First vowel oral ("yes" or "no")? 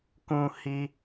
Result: no